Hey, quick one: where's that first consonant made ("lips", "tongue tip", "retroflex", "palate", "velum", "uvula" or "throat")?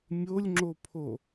lips